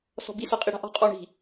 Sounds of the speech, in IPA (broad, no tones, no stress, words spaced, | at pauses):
sɔ̤bi sɔqʼiɽa̤ʔɔ̤ qʼɔɳi̤